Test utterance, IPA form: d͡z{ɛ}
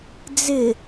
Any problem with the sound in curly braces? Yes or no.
yes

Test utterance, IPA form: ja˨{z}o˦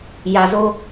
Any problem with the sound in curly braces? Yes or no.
no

